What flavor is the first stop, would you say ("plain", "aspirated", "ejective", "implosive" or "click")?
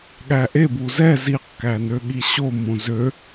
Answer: implosive